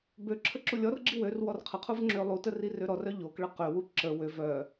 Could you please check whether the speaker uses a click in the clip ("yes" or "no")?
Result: yes